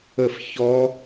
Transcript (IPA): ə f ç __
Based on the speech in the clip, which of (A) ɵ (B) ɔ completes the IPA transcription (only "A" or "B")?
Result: B